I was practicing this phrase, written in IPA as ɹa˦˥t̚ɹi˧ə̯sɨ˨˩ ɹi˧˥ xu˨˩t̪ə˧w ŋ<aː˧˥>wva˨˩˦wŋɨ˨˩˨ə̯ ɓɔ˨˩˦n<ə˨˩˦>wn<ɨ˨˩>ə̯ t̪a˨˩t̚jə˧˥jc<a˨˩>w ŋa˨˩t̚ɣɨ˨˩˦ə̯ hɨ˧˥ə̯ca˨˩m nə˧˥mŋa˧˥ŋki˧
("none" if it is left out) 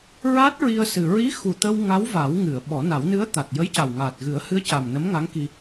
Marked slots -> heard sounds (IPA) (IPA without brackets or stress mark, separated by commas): a˧˥, a˨˩˦, ɨ˧˥, a˨˩